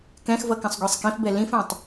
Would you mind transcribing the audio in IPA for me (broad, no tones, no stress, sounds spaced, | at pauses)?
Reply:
k ɛ̃ x v ʌ k ə̃ sˤ ɡʷ ɛ sˤ k ĩ f b ɛ l ĩ f ɛ̃ tˤ